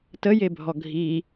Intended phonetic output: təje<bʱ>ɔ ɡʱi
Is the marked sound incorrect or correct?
correct